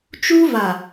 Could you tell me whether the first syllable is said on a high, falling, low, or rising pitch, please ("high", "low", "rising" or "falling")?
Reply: high